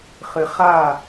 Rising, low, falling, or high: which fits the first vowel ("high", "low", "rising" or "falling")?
low